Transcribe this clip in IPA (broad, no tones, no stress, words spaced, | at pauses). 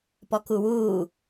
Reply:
pɔkuwuː